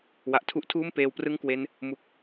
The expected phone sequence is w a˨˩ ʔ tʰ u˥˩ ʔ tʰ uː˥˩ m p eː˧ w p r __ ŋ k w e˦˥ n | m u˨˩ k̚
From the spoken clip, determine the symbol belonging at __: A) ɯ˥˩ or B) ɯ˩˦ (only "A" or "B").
A